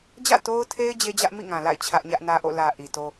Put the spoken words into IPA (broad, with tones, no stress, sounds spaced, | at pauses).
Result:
d͡ʑ ä̰˦˨ t o˦ ʊ̯ tʰ e˦ ɪ̯ d͡ʑ e˦ d͡ʑ ä˦ ʔ m ḭ˦˨ ŋ ã˨ l a̰˦˨ ɪ̯ t͡ɕʰ ä˦ ʔ ɲ ä˦ ʔ n ä˦ ʔ o̰˦˨ l ä˨ ʔ i˨ t o˦